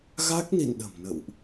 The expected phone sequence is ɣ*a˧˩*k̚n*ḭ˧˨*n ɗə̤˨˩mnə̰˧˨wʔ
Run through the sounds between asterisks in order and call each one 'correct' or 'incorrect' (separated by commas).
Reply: incorrect, correct